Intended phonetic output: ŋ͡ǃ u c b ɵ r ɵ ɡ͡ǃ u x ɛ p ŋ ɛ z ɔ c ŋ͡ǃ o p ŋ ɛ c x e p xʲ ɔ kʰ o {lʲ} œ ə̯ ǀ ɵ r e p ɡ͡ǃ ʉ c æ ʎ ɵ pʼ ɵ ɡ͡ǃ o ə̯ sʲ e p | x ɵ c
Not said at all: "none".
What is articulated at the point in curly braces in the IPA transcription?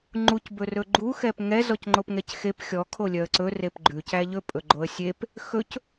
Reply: lʲ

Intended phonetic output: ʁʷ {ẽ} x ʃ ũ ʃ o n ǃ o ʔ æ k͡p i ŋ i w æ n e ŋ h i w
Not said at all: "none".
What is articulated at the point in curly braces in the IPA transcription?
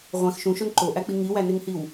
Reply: ẽ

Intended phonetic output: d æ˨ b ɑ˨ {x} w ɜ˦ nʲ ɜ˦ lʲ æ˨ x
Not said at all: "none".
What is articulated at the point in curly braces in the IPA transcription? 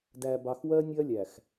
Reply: x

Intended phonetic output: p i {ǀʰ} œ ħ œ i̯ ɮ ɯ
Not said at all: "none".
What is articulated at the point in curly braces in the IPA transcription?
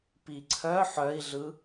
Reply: ǀʰ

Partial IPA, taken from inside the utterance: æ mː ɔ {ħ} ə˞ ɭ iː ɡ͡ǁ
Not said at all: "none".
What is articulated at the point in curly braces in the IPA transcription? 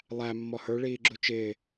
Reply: h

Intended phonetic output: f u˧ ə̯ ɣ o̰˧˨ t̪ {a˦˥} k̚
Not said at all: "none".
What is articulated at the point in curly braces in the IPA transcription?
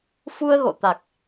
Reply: a˨˩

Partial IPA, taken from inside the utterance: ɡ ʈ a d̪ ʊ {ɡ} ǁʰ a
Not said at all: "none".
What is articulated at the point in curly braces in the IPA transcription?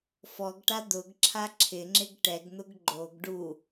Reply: ɡ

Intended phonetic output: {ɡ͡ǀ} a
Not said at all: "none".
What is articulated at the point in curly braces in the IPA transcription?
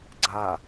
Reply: ɡ͡ǀ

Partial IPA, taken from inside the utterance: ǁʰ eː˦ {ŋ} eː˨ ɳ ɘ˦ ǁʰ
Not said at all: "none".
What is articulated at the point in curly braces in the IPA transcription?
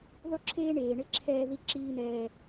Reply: ɳ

